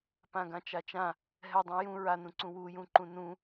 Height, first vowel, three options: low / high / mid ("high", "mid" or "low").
low